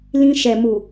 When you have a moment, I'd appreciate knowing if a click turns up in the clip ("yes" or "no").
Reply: no